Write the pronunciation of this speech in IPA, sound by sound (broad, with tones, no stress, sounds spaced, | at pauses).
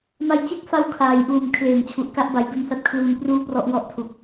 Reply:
m a˧ j t͡ɕ e˥˩ k̚ f a˧ w kʰ aː˩˦ j ʔ uː˨˩ m kʰ l eː˨˩ ŋ t͡ɕʰ u˨˩ ʔ k a˥˩ ʔ b a˩˦ j d u˧ n s a˦˥ t̚ kʰ l uː˧ n p r uː˥˩ p r ɔ˦˥ ʔ w ɔ˥˩ ʔ tʰ u˨˩ k̚